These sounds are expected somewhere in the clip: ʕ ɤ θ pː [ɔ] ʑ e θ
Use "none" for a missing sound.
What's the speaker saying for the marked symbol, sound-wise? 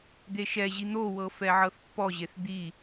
ɔ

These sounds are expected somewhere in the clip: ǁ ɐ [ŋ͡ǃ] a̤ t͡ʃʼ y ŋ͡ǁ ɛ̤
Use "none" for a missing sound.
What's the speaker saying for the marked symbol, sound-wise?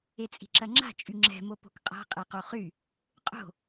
ŋ͡ǁ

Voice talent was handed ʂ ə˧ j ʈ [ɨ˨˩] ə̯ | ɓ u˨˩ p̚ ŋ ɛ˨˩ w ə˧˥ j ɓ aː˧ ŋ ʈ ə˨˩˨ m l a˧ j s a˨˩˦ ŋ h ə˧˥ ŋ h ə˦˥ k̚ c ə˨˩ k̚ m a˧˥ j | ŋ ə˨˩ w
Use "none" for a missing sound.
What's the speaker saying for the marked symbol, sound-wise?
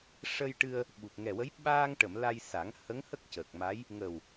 ɨ˧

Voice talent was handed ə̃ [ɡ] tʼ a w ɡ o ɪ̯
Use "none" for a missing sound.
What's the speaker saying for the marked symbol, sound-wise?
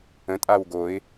none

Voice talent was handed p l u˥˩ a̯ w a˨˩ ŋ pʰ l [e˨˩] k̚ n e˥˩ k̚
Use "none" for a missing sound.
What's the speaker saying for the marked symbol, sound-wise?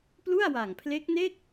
e˦˥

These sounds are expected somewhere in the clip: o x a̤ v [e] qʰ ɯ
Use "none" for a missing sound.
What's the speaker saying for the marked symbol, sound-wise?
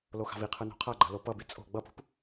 i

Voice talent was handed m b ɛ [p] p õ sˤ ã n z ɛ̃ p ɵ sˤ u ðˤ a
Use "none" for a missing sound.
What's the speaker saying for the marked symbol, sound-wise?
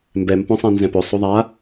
m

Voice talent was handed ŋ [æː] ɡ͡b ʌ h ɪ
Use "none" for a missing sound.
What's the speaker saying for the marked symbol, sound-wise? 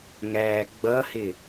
æː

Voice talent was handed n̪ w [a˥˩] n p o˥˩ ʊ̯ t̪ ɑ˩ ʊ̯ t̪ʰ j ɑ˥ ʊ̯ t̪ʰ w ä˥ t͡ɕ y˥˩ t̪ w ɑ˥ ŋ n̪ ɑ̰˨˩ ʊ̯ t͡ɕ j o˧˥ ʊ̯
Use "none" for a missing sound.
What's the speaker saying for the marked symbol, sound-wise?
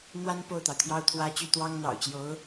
a˥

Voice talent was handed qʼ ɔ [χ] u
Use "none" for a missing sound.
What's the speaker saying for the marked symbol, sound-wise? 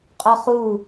χ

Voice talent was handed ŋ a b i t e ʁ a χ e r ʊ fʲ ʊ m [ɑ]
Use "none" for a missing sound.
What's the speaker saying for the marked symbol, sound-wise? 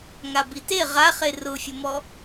ɔ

